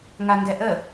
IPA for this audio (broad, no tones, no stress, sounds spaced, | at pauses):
ŋ a ŋ ɡ ɛ ʔ ə